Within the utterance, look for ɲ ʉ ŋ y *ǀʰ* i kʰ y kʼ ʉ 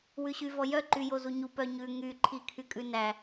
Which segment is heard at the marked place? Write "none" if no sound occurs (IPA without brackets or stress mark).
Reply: ǃʰ